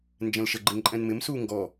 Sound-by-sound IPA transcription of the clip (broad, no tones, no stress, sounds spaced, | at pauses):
n d͡ʒ ɛ̃ l ʃ ə ɡ͡ǃ ɪ ŋ ǃʼ ɛ̃ n m ɪ m s u ŋ ɡ ɔ